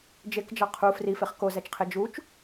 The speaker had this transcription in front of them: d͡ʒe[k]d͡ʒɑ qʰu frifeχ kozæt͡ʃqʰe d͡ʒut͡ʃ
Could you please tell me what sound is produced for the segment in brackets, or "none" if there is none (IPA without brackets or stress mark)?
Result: k